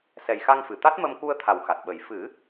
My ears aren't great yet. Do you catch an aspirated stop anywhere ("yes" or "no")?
yes